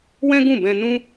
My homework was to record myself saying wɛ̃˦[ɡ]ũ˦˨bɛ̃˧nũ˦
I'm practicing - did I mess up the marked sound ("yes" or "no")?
no